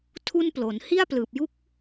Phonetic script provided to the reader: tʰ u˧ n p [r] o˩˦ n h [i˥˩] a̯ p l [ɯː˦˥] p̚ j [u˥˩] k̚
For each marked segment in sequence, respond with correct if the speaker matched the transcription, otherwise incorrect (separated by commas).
incorrect, correct, incorrect, correct